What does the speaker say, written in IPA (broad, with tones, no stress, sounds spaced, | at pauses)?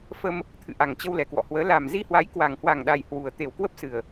f ə˧ m | t̪ʰ ɨ̰˧˨ ʔ a˨˩ ŋ t͡ɕ ə˧ w l ɛ˨˩ k w ɔ̰˧˨ h w əː˨˦ l a˨˩ m z i˧ h w a˨˦ j k w a˨˩ ŋ h w a˨˩ ŋ ɗ a˨˩ j h w u˨˩ ə̯ t̪ e˨˩ w k w ə˦˥ p̚ s ɨ˨˩ ə̯